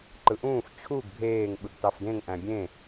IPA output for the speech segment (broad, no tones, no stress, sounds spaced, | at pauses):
ǃ ɯ ʔ ũː f t͡ɕʰ u ɡ bʱ eː ŋ ɓ ɯ ɡ t ɑ f d ẽ ŋ ʔ æ̃ bʲ ẽ